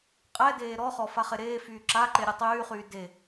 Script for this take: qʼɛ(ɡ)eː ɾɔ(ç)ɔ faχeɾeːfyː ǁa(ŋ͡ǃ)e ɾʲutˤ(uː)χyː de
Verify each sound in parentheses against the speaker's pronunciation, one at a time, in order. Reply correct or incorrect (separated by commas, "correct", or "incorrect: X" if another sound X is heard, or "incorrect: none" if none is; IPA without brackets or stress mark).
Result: incorrect: d, incorrect: χ, incorrect: ǃ, incorrect: yː